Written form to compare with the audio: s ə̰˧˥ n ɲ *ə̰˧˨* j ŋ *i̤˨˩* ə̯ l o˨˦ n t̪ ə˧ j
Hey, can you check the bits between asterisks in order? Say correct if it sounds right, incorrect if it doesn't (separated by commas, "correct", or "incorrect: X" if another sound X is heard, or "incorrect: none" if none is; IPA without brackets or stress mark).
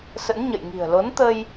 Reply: correct, correct